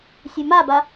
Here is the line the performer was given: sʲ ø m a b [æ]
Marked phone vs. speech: incorrect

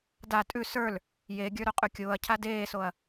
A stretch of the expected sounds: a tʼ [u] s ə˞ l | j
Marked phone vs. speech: incorrect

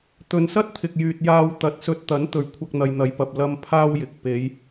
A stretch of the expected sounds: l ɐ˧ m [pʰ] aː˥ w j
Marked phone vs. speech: correct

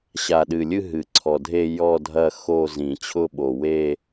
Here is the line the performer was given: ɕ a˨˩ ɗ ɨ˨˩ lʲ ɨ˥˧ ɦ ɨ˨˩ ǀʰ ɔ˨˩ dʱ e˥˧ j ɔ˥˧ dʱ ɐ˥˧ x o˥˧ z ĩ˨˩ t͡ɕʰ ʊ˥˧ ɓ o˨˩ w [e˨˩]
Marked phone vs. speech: incorrect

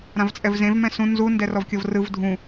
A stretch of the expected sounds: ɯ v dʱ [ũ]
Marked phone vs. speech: correct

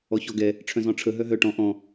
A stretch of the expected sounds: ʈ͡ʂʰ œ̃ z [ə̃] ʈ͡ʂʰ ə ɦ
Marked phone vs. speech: incorrect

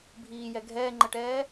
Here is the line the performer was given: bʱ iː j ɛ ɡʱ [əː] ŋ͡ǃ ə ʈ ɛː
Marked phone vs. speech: incorrect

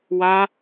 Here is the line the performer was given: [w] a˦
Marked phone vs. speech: correct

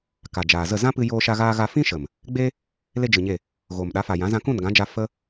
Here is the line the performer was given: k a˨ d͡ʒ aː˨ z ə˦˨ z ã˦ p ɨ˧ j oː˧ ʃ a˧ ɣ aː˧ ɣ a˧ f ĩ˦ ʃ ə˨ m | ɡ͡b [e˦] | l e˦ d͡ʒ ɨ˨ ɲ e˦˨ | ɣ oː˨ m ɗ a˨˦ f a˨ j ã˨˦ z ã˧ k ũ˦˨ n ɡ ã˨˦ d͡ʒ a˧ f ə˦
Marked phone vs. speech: correct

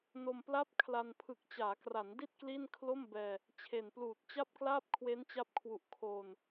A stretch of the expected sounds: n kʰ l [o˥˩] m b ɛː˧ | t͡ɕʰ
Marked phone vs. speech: correct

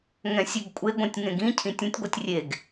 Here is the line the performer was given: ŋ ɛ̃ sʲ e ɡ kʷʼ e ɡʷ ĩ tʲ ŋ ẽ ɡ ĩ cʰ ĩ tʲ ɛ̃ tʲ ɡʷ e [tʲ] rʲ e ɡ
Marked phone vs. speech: correct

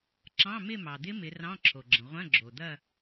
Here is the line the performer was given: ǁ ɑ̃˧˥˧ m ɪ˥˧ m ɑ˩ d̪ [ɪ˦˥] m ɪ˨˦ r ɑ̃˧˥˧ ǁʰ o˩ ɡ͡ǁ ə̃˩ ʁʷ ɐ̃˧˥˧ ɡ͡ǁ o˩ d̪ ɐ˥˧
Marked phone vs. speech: correct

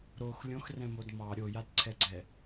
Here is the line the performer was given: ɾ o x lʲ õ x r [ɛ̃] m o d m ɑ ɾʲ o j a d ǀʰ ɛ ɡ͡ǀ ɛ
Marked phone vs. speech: correct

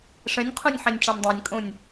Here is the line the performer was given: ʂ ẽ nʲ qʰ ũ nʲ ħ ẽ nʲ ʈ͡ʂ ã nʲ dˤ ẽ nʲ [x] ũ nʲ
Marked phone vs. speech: incorrect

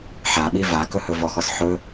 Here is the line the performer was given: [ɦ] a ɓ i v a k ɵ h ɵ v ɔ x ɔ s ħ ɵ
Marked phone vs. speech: incorrect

